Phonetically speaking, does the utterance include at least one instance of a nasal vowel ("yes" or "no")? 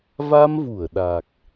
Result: no